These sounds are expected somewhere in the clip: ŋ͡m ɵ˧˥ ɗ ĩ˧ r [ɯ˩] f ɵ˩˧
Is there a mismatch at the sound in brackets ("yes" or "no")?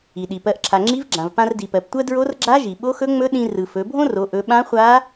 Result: no